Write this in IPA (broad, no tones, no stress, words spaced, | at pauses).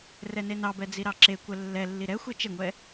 rɛnenɑbɛ d͡ziɾɑǁekʷɛ lːɛlːi ɾɛ xʷet͡ʃeŋʷɛ